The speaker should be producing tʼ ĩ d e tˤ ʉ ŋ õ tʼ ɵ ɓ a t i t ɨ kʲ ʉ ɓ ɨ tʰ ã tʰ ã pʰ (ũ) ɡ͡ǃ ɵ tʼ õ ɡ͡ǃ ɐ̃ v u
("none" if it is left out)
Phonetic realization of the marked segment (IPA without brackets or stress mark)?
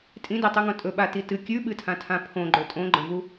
õ